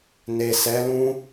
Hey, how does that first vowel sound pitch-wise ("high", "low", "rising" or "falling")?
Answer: low